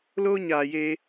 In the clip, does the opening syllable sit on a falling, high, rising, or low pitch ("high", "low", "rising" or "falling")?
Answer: high